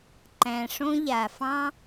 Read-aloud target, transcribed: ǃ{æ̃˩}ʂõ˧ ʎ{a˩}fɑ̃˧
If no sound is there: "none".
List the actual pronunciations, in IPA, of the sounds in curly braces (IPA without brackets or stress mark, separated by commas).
æ̃˩, a˩